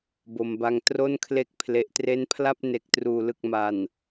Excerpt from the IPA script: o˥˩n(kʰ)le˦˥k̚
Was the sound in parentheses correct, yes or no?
yes